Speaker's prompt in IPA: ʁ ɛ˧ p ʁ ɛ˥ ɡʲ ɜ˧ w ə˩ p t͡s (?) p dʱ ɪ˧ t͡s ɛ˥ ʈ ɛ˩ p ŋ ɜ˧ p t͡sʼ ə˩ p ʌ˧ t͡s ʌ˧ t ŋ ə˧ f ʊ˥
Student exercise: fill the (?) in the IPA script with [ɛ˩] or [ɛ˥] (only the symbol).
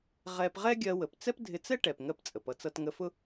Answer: ɛ˥